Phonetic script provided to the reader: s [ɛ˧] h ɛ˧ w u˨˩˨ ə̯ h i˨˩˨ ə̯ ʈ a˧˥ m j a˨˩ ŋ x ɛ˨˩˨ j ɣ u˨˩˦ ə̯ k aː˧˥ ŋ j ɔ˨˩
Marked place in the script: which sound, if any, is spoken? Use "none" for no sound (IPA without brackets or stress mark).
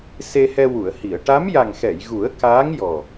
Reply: e˧